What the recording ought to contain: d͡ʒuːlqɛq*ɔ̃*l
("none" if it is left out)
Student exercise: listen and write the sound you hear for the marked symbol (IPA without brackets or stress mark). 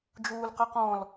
ɔ̃